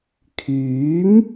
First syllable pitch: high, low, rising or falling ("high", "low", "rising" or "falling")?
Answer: rising